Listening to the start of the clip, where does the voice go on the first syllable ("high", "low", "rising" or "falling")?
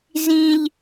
high